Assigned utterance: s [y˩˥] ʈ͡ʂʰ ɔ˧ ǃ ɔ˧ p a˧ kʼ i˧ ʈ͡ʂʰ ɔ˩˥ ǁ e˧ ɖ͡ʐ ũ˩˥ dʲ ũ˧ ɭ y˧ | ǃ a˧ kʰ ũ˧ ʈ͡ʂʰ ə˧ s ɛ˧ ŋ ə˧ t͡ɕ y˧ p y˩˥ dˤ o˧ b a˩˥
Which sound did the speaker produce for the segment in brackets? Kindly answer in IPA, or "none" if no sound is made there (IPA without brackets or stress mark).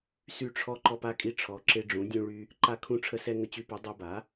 y˧